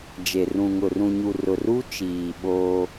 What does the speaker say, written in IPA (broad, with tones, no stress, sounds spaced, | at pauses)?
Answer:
d͡ʒ e˨ r ũ˨ ŋ ʊ˨ r ũ˨ ɲ u˨ r ʊ˨ r u˦ t͡ʃ iː˨ ɓ oː˦